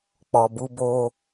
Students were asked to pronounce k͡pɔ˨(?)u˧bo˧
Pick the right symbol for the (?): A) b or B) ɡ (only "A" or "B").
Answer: A